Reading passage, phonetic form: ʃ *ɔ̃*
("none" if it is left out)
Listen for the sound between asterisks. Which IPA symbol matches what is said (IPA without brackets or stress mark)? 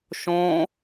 õ